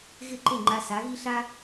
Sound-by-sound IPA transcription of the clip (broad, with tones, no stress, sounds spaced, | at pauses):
ɣ ɪ˥˩ ǃ e˥˩ ŋ͡ǃ a˧ s a˩˥ ɣ i˥ ɬ a˥